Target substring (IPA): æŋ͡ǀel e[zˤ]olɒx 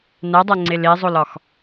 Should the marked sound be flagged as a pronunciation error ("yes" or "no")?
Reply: no